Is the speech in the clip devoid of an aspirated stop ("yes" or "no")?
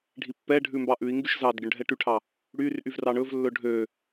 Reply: no